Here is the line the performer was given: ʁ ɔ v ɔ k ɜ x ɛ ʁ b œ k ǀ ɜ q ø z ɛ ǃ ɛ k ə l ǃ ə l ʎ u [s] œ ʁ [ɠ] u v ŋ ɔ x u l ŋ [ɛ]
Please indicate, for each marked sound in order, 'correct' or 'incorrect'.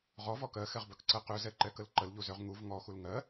incorrect: z, incorrect: ŋ, incorrect: ɜ

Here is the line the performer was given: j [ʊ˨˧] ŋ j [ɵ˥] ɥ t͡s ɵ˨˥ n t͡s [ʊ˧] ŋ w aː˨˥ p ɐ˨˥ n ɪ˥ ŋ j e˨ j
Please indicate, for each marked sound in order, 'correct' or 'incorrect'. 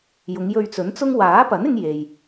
correct, incorrect: ɵ˧, incorrect: ʊ˥

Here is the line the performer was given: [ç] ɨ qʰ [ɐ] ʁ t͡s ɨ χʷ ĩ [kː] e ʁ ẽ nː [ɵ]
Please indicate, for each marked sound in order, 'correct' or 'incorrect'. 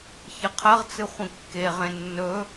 correct, correct, correct, correct

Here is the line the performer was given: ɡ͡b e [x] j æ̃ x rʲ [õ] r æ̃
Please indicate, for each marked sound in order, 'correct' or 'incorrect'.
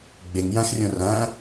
incorrect: ŋ, correct

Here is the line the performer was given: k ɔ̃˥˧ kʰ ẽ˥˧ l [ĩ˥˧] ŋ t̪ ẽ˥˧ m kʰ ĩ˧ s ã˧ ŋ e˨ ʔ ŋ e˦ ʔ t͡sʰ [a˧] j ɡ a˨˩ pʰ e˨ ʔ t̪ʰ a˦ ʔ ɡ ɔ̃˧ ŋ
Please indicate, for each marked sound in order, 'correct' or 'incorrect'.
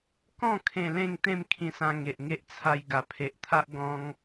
incorrect: ẽ˥˧, correct

